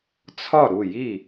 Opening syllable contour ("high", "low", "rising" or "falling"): falling